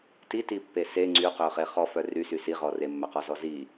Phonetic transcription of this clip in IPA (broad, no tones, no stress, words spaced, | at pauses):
titipːe se ŋ͡ǀyqøχe χɔfœ rysy siʁɔ remːœqɔzɔ zi